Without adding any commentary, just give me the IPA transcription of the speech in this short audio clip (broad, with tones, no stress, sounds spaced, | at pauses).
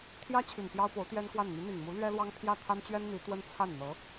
t̪ʰ j ä˥ t͡ɕʰ y˨˩ n p j ɑ˥ ʊ̯ p o˧˥ ʊ̯ t̪ j ɛ˥ n k w a˥˩ n n̪ y˧˥ n̪ i˨˩ ŋ m u˧˥ l ɥ ɛ˥ l w ɑ˥ ŋ pʰ j ä˥˩ t̪ʰ a˥ n t͡ɕ ɥ ɛ˥ n n̪ i˧˥ t̪ w ə˥ n t͡sʰ a˥˩ n n̪ ɤ˧˥